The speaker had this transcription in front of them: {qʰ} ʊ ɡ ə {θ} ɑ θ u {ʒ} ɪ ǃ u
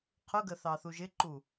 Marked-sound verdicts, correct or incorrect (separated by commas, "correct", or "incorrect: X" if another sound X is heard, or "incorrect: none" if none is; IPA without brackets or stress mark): correct, correct, correct